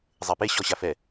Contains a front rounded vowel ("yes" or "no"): no